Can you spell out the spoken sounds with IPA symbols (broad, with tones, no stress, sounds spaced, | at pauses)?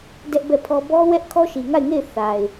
d ɛ˦ ʔ b ɛ˦˨ pʰ ɔ˦ b ɔ˦ w ɛ˦ ʔ kʰ ɔ˦ ʃ i˨ ŋ a˦˨ ɪ̯ ŋ e˦˨ ɪ̯ θ a˨ ɪ̯